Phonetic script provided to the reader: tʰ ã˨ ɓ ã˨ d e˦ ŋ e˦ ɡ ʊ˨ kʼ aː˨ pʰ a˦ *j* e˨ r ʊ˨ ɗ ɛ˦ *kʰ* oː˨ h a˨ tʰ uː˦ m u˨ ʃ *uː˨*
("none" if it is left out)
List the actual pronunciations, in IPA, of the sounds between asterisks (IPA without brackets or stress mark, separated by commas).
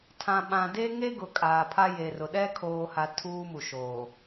j, kʰ, oː˨